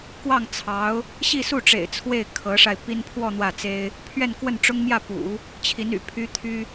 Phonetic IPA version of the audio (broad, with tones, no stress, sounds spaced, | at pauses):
k w ɑ˥˩ ŋ t͡sʰ ɑ˧˥ ʊ̯ | ɕ i˥˧ s u˥˩ ʈ͡ʂ ḛ˨˩ ɪ̯ t͡sʰ w e˥˩ ɪ̯ kʰ ɤ˧˥ ʂ a˧ ɪ̯ p i˥ n pʰ w ɔ˥˧ n̪ w ä˥˩ t͡s e˥ ɪ̯ | pʰ ɥ ɛ˥˧ n k w ə˥˩ n ʈ͡ʂ ʊ˥ ŋ m j ä˥˩ p ṵ˨˩˦ | t͡ɕʰ i˧˥ n y̰˨˩ pʰ y˥ t̪ʰ y˥